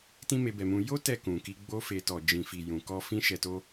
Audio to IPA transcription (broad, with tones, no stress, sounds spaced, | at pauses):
t ĩ˦ m e˧ b ɛ˨ m ũ˧ j o˦ t ɛ˦˨ k ũ˨ k i˧ ɡ͡b o˧ f e˨ t ɔ˨ d͡ʒ ĩ˨ f i˨ j ũ˨ k ɔ˧ f ĩ˧ ʃ ɛ˨ t o˧